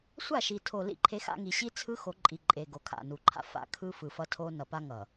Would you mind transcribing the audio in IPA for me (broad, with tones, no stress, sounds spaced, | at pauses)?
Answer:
sʷ a˦˨ ʃ i˨ tʰ o˨ l ḭ˦˨ ǃʰ e˦ x a̰˦ ŋ i˨ ɕ i˦ t͡sʰ ɯ˦ x o˨˦ ǃʼ i˨ ǃʼ e˨ ɡ o˨ kʰ a̰˦˨ n u˨ ǃʰ a̰˦ f a̰˦ kʰ ɯ˦ f ɯ˨ f ʌ˦ tʰ o˦ n ʌ˨ p a˦ ŋ ʌ˨